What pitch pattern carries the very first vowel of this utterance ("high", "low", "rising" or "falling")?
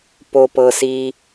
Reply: low